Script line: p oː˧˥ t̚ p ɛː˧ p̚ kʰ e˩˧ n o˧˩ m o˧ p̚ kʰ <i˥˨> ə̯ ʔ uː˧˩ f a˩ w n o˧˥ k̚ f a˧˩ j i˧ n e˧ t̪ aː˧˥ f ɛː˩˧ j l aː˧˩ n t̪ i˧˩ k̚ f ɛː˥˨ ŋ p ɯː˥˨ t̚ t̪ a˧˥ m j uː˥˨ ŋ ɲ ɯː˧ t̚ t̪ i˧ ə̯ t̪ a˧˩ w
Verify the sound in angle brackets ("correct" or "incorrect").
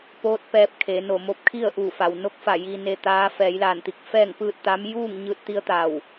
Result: correct